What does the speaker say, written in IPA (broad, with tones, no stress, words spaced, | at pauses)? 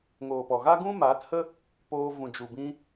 ŋoː˨pɔ˨ɣa˦ɡũ˦ maː˨˦thə˦ | poː˧ vũ˨d͡ʒu˨bĩ˧